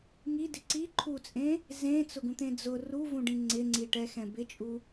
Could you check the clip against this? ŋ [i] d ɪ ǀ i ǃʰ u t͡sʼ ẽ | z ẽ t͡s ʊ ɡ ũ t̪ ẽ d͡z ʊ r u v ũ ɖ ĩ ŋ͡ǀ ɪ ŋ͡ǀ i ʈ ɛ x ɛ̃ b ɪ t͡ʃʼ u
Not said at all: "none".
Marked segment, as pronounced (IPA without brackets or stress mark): i